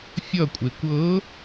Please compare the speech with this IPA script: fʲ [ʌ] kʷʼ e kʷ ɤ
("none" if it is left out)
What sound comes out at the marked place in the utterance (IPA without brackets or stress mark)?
ʌ